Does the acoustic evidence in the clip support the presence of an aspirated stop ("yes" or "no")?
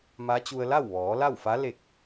no